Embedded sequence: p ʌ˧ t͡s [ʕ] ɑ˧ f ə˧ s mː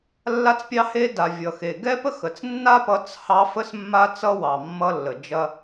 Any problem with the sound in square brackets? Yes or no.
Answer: yes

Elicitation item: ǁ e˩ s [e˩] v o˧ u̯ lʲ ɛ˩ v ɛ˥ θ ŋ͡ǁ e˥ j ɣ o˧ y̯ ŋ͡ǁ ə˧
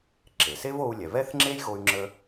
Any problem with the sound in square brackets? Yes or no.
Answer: yes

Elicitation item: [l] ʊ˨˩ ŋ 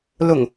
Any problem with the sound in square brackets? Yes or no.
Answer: no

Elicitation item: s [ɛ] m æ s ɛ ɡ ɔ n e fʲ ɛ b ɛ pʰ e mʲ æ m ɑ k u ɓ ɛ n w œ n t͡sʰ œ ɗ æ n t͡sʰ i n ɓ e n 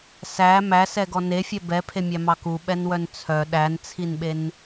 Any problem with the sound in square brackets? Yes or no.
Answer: yes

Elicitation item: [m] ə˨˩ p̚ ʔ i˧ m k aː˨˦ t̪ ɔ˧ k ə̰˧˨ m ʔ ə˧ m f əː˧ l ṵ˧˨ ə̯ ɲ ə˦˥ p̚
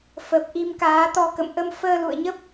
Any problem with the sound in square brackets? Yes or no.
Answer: yes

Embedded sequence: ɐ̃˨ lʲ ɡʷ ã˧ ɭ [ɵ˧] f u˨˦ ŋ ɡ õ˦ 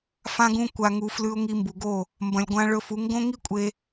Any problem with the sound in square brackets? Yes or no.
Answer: no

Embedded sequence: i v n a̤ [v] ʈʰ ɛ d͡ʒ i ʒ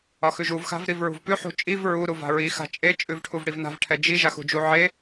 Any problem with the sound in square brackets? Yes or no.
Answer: no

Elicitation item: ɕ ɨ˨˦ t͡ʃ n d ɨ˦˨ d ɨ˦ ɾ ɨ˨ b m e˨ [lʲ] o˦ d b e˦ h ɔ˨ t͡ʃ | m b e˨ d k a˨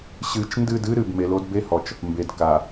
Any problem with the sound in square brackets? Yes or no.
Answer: yes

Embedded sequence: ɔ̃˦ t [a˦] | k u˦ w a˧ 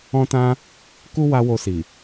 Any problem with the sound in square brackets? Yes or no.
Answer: yes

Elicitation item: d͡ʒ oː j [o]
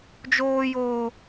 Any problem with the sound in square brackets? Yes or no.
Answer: yes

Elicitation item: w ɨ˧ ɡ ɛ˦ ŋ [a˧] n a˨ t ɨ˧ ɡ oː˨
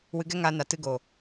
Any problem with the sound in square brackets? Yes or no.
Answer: no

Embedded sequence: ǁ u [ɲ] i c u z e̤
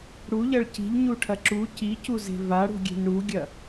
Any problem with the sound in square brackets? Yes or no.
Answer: yes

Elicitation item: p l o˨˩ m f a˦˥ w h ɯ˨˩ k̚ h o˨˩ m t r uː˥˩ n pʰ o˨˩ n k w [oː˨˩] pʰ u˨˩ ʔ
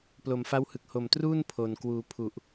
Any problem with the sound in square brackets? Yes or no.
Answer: yes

